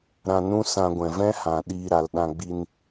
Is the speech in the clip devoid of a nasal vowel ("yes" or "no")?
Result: no